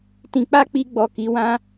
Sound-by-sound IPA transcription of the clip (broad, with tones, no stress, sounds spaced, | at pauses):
t ĩ˧ k͡p a˦ k͡p i˧ ɡ͡b ɔ˨ k i˨˦ w ã˦